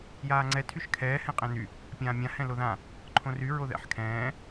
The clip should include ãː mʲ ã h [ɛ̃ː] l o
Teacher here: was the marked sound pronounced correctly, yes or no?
no